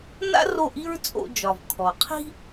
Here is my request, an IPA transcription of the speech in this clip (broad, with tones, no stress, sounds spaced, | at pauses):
n a̰˥ r o˥˩ ʔ i˥ ɹ t͡sʼ o̰˧ d͡ʒ ɒ˩ v kʰ ɔ˩ qʰ i̤˥